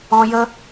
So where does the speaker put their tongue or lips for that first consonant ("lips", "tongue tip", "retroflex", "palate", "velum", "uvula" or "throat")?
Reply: palate